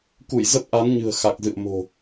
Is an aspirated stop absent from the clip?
yes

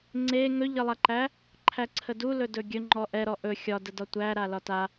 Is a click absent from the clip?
no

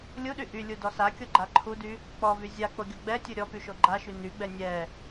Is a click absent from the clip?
no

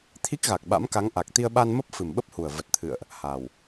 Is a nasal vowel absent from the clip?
yes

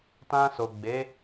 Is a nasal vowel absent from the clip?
no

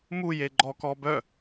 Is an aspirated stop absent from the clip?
yes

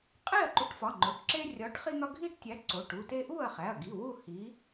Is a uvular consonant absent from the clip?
no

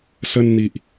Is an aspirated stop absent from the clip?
yes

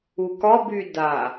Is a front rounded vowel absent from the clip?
no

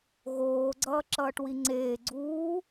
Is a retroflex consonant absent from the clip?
no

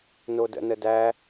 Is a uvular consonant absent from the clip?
yes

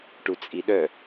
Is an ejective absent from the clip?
no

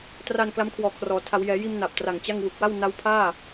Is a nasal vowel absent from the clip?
yes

